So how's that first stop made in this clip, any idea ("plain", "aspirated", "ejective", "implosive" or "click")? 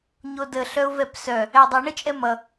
plain